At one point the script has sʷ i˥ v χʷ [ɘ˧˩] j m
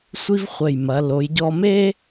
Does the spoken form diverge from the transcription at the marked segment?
no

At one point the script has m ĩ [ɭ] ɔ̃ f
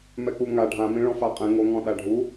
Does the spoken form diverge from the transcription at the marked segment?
no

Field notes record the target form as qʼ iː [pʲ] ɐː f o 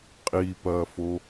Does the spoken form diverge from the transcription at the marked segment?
yes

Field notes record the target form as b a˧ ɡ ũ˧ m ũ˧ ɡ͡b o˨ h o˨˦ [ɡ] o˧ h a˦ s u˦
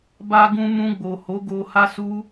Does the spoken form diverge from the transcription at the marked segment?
no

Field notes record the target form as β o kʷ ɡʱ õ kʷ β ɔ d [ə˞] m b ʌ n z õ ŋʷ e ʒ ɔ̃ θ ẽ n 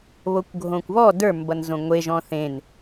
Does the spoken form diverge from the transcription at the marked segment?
no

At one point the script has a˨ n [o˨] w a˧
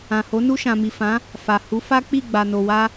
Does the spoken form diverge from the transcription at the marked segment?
no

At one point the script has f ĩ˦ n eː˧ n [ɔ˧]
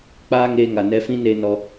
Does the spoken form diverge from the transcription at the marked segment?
no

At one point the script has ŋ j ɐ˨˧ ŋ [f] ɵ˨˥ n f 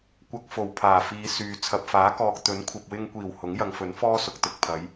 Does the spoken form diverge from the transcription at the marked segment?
no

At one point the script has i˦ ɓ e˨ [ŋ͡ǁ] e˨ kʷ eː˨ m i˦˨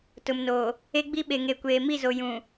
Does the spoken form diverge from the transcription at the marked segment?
yes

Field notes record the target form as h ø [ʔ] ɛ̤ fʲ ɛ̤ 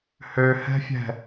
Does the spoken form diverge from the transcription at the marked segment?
yes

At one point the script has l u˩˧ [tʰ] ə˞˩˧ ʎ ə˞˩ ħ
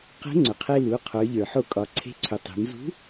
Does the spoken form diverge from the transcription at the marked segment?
yes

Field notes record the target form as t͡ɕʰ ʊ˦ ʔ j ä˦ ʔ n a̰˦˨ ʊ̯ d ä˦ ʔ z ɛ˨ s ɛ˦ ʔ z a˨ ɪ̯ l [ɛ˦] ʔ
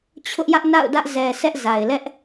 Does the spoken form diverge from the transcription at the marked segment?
no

